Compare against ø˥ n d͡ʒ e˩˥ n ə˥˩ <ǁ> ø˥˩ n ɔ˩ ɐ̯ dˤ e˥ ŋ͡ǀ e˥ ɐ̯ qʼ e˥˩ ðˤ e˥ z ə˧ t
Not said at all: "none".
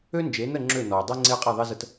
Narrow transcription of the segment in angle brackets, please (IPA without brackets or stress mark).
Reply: ŋ͡ǁ